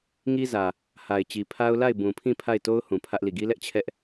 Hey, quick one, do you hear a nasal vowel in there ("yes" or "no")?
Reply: yes